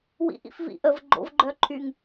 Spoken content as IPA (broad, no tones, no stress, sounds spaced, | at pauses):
w ḭ ʔ ḭ f v ḭ ʔ ə v ɡ͡ǃ o̰ v ɡ͡ǃ œ ǃʰ y ŋ